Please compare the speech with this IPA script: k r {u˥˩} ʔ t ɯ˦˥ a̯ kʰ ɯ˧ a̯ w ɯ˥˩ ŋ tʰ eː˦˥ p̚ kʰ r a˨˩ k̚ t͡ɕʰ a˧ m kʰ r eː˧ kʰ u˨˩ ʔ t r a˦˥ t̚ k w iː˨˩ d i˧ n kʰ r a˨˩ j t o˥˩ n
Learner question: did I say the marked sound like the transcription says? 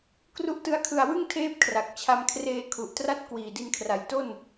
no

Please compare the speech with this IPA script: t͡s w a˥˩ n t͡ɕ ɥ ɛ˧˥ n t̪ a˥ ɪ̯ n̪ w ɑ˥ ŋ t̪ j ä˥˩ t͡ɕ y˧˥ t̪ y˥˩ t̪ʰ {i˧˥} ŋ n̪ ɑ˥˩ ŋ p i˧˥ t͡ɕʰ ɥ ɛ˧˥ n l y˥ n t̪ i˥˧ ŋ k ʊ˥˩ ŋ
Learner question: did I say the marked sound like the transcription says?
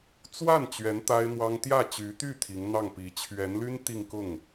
yes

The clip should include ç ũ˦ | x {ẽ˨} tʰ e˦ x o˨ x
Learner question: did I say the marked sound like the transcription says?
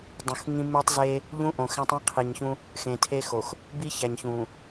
yes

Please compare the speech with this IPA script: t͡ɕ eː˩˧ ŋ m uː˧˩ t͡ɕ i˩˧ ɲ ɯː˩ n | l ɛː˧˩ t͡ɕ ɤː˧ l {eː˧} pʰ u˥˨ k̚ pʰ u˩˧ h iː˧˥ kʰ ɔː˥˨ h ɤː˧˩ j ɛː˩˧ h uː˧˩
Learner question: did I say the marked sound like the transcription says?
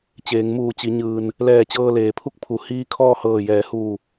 no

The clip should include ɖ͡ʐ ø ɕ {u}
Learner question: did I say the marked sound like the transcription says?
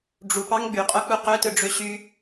no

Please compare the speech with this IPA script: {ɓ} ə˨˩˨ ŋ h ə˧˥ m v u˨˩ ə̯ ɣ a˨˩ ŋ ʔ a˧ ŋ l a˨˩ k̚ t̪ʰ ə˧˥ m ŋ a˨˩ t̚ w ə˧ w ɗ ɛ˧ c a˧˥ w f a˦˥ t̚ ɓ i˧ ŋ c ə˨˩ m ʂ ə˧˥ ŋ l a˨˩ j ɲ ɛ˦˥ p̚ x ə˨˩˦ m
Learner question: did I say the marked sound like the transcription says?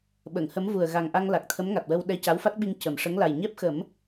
yes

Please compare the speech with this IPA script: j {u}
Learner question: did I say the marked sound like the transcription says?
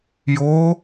no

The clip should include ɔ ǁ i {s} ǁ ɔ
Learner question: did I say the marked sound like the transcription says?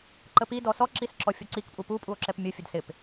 yes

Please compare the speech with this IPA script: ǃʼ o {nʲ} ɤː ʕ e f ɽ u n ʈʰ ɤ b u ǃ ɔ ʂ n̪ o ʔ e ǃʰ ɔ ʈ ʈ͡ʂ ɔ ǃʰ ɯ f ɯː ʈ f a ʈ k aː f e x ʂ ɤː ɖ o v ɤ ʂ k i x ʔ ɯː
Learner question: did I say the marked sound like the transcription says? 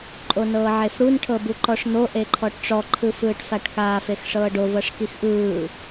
no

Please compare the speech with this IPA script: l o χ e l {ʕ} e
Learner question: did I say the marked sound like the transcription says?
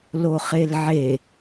yes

